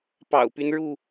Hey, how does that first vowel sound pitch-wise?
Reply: low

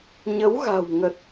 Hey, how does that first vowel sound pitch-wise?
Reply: rising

